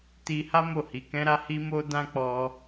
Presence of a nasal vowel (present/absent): present